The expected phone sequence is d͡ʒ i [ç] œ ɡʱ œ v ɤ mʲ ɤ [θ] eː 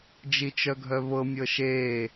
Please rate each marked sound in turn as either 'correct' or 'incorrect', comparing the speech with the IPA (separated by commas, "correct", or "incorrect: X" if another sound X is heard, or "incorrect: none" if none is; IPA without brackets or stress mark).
incorrect: t͡ʃ, incorrect: ʃ